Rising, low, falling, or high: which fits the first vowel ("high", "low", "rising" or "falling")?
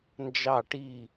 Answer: falling